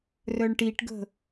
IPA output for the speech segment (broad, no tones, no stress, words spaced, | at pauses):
rœɳʈiʈɡə̤